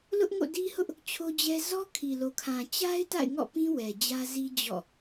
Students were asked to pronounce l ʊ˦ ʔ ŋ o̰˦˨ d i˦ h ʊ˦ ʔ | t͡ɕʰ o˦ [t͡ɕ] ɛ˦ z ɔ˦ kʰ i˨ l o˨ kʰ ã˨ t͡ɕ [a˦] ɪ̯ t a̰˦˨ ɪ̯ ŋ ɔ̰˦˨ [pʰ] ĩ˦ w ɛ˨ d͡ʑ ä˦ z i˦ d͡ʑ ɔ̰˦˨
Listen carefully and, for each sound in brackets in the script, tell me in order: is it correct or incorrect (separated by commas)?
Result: incorrect, correct, incorrect